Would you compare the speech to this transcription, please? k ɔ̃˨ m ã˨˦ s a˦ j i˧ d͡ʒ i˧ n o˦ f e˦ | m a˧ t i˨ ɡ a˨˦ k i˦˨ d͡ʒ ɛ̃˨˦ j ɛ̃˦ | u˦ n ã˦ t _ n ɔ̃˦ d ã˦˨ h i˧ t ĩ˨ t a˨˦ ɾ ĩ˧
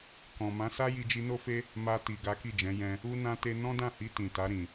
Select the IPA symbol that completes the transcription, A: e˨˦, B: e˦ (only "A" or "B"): B